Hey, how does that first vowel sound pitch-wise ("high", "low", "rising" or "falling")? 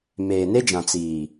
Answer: low